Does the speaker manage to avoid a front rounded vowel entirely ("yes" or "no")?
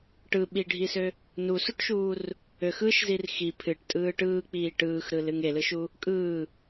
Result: no